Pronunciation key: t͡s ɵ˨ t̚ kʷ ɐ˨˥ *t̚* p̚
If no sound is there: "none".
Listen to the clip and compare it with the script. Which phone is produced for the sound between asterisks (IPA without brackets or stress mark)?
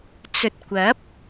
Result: none